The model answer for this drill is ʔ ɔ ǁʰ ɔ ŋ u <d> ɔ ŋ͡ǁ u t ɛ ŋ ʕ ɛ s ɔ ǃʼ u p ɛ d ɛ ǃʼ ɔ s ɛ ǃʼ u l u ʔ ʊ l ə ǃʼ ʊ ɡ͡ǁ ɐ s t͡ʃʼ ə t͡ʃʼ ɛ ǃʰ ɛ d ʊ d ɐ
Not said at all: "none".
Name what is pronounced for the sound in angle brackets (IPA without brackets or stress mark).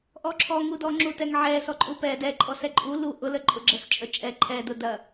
d